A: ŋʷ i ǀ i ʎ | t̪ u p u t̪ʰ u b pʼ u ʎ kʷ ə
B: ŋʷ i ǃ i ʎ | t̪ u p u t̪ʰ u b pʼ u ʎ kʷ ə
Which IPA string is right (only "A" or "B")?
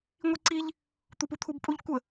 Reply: A